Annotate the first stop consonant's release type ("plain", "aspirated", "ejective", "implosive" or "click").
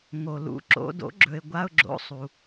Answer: click